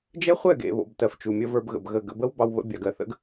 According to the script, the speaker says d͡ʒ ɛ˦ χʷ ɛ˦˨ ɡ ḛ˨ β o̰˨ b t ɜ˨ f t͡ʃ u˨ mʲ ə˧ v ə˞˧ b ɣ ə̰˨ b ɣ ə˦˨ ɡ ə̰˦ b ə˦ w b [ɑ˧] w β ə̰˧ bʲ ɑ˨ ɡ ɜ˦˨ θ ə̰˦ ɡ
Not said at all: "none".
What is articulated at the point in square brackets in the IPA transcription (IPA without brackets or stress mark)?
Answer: ɑ˧